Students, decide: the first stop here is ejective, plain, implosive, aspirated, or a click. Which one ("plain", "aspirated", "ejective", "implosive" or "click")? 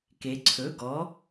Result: plain